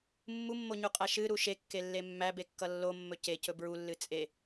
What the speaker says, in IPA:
mː u mː o ɲ u qʼ æ ʃ ɨ ɾ u ʃ e kː e lː e mː æ b e kː ʌ lː o mː ɵ c e c ɵ b ɹ u lː ɨ t͡sʼ e

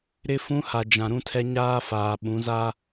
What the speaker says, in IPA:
ɾ ɪ˦ f ũ˦ h a˨ d͡ʒ ã˨ ɾ ũ˦ tʰ ɛ˦ ɲ aː˦ f aː˨ ɓ ũ˨˦ z a˦

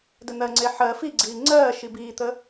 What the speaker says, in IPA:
d ə n̪ ɜ ŋ͡ǀ e ħ ɜ f i ɡ͡ǀ iː ŋ͡ǀ ɜː ʃ i b iː t̪ ə

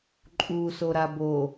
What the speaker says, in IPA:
ǃʼ u s o ɾ a b o

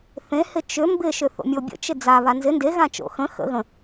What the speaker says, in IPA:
θ ẽ h ɪ t͡ʃ ʏ m b ɪ ʃ ʏ θ o̰ mʲ o bʲ ə̰ t͡ʃ ɪ d͡z a β a n z ɪ n d e ɣ ã t͡ʃ o̰ x ə̃ x ə̰ ɣ ə̃

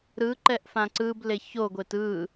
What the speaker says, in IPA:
ɾ ɯ ǃ ɛ ʔ f ã ǀ ɯ b l e ç o ɡʷ e t ɯ

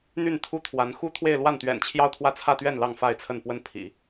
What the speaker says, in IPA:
n̪ y˥˧ n t̪ʰ u˥˩ t̪ʰ w a˧˥ n x u˥ t̪ʰ w e˥˧ ɪ̯ l w a˥˩ n t̪ ɥ ɛ̰˨˩ n t͡ɕʰ j ɑ˥˧ ʊ̯ t̪ʰ w ä˥˧ t͡sʰ ä˥˧ t̪ ɥ ɛ˥˧ n l ɑ˥˧ ŋ f a˥˧ ɪ̯ t͡sʰ ə˥˩ n p w ə˥ n pʰ ḭ˨˩˦

